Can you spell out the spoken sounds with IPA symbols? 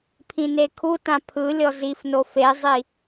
pʰ ĩ n e kʰ u t ã pʰ ɯ lʲ ɔ z i f n o f e zˤ i

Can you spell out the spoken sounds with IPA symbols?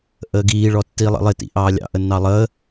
ʔ əː ɡ iː ɭ ɔ tː iː lˠ ə̰ lˠ ɪ t ḭ ʔ ɑː lʲ ɑ̰ ʔ ə nː ɑ lˠ əː

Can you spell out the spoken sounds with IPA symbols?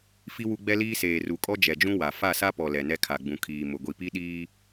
f i˦ w u˦ ɡ͡b ɛ˦ l iː˦ s eː˨ r u˨ kʼ ɔ˦ d͡ʒ ɛ˨ d͡ʒ ũ˦ w a˨ f a˦˨ s a˦ p ɔ˨ l ɛ˨ n ɛ˦ kʰ a˨ ɡ͡b ũ˨ kʰ iː˨ m ʊ˨ ɡʷ i˨ p i˦ ɗ iː˦

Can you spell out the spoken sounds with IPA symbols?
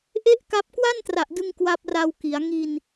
ʔ e˥˩ ʔ k a˦˥ p̚ k w a˥˩ n t r a˨˩ ʔ d ɯ˧ ŋ k w a˦˥ p̚ r a˧ w k i˩˦ a̯ ŋ i˧ n

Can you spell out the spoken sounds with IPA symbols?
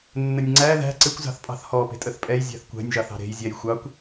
nː ə nʲ ŋ͡ǀ æ ð æ̤ ǀ ɪ kʷ z ɑ̤ θ pʼ ɑ̤ θ h ɔ p e̤ tʼ ə θ pʼ ɛ j zʲ æ̤ θ kʷ æ̤ nʲ ʒ ɑ θ ɑ̤ ɾ e̤ j zʲ ɛ j xʷ ɑ kʷ

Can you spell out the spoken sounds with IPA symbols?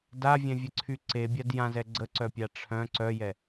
d a vʲ ɛ̃ vʲ ə ǀʰ y ǀ e bʲ a d j ã z ɛ ɡ͡ǀ ə ǀ œ pʲ a ʈ͡ʂʰ œ̃ ǀ œ j ɛ

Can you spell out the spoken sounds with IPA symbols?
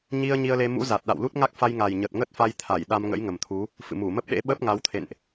ɲ i˧ ə̯ ɲ i˧ ə̯ l e˧ m ṵ˧˥ z a˨˩ t̚ ɗ a̰˧˨ w l u˦˥ t̚ ŋ a˦˥ k̚ f a˧ j ŋ a˨˩ j ɲ ə˨˩ t̚ ŋ ə˦˥ t̚ f a˧ j t̪ʰ a˧˩ j ɗ a˧ m ŋ ə̰˧˥ j ŋ ə˨˩ m t̪ʰ u˨˦ | f ɨ̰˧˨ m u˧˩ m ə˦˥ p̚ ɗ ḛ˧˥ ɓ ə˦˥ p̚ ŋ a˨˦ w t̪ʰ ḛ˧˨ n ʔ

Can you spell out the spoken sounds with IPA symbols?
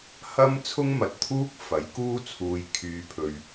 h ɐ˥ m t͡sʰ ʊ˥ ŋ m ɐ˨ t̚ t̪ʰ uː˥ k̚ f ɐ˨˥ j k uː˥ t͡sʰ uː˨ j kʰ yː˨ pʰ ɵ˨ ɥ

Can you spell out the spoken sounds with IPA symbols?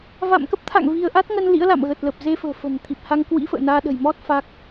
v a̰˧˨ m k ə˦˥ p̚ t̪ʰ a̰˧˨ ŋ v i˧ ə̯ ʔ a˦˥ t̚ ŋ ə˧ n l ḭ˧˥ ə̯ l a̰˧˨ m ɣ əː˨˩ t̚ l ə˨˩ p̚ z e˧ f ə̤ː˨˩ f ə̤˨˩ n t̪ʰ i˨˩ p̚ h a˧ ŋ k w ḭ˧˥ f ə̰ː˧˨ n aː˧ ɗ ə̤˨˩ j m ɔ˦˥ t̚ f a˦˥ k̚

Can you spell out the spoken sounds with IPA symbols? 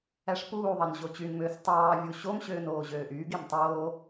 æ ʂ p uː ðˤ ɑ n ʑ o t͡ɕ y n m øː s tˤ ɑː vʲ u ɕ o m ɕ øː n oː ʑ øː ʔ yː ɡ e m tˤ oː

